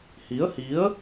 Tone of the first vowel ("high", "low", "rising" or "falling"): rising